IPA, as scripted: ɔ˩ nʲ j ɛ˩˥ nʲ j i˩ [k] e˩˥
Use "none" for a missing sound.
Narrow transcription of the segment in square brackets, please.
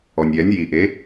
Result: ʔ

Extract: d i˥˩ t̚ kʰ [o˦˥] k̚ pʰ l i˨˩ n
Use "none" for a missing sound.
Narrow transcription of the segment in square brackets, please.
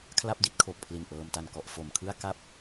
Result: o˨˩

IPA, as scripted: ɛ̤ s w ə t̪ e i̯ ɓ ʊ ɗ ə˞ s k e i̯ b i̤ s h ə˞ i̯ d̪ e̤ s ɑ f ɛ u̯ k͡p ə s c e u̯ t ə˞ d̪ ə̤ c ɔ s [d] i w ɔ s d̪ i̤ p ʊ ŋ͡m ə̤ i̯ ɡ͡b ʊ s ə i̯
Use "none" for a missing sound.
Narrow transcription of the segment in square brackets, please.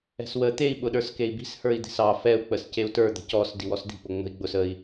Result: d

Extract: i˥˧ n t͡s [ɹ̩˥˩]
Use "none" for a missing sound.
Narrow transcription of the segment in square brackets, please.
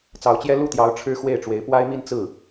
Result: ɹ̩˥˩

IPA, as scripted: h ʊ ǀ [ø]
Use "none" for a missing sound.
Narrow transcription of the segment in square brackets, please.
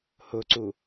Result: u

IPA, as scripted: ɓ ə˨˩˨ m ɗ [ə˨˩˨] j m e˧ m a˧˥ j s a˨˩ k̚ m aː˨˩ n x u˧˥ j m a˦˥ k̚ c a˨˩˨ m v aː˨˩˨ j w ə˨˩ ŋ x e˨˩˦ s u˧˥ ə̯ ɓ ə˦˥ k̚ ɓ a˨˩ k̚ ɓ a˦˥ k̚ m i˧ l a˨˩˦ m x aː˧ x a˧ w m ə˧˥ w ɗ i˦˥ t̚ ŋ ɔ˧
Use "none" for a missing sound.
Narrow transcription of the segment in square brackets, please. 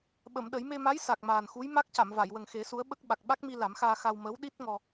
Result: ə˨˩˦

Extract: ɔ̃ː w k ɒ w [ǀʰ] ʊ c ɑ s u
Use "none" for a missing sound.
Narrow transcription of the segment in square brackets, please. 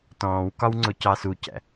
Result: ŋ͡ǀ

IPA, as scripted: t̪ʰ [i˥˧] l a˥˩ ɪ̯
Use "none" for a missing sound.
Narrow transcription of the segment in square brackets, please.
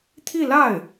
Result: i˥˧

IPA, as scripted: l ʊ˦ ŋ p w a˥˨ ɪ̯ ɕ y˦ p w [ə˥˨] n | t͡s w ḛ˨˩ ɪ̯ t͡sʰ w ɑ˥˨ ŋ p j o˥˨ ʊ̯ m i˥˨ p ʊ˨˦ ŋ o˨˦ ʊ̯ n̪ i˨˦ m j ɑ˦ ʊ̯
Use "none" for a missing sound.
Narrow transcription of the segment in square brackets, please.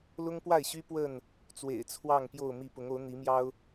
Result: ə˥˨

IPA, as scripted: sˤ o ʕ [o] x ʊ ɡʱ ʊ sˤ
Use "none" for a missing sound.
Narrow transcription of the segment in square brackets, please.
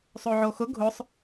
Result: o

